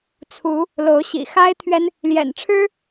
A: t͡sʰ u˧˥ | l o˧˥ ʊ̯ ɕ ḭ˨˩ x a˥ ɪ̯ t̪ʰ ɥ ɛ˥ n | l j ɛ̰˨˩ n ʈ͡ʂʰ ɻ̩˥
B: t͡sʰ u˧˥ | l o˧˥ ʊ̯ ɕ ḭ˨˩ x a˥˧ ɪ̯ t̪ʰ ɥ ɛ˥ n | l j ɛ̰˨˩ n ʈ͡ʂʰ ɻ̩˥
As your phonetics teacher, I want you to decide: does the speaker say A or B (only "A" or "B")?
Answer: A